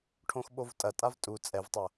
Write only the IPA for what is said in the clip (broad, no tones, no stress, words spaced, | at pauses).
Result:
ʈʰõxɓovtʼɐtʼav tʼu t͡sʼɛvtˤɐ